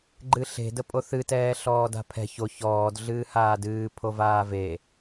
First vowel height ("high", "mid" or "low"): high